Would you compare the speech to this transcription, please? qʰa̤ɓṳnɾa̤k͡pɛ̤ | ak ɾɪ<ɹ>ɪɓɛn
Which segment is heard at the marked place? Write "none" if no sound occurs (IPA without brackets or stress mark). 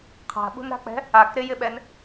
j